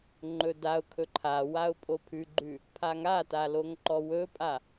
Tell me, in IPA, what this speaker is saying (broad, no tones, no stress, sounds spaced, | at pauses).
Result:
ŋ͡ǃ ɵ d a ʊ̯ kʰ ɵ ǃʰ a w a ʊ̯ pʼ o pʰ ʉ ɡ͡ǃ ʉ | pʰ a ŋ a t a l o ŋ ǃ ɔ w ɵ pʼ a